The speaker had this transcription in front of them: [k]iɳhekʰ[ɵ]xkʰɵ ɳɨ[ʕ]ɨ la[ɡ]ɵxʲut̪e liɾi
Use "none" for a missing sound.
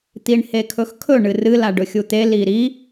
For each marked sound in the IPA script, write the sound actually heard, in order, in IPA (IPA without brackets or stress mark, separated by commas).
t̪, ɵ, r, ɖ